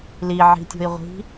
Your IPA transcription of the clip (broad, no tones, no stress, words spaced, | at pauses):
liʕi̤tʲo̤i̯ ʁʷi̤